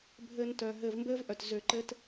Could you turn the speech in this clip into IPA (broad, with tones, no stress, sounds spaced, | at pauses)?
bʱ ɘː˨ n t œ˩ ɦ ɘː˨ v m b ɘː˦ v ʔ œ˩ t z ø˨ ǃ ɘ˦ t